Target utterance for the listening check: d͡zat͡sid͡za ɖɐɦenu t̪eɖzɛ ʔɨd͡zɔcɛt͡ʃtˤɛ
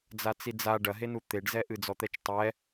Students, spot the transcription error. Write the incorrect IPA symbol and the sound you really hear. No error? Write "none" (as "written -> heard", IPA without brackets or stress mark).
c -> t̪